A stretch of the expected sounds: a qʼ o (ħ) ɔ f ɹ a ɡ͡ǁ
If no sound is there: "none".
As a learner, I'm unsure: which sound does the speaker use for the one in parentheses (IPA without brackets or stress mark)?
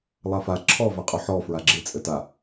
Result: ħ